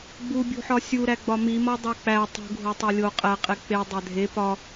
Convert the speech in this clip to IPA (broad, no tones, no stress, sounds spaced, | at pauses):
ɡ͡b u bʲ ṳ ħ ɒ sʲ u ɾ æ ɡ͡b ɒ m i m ɒ dˤ o k͡p æ tˤ ṳ ɡʱ o tˤ e lʲ o qʼ æ qʼ e k͡p e dˤ æ dʱ e p ɒ